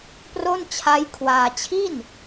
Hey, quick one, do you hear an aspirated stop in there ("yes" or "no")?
yes